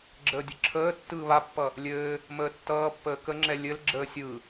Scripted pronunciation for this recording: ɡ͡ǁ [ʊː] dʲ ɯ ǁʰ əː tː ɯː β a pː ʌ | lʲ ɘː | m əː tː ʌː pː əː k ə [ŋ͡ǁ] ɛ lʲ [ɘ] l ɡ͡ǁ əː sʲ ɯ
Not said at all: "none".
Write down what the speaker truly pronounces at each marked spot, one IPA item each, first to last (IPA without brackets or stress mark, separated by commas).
əː, ŋ͡ǁ, ɘ